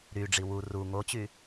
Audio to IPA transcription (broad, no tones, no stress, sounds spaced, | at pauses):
ɾ y ɖ͡ʐ i w u r u ŋ o t͡ɕ y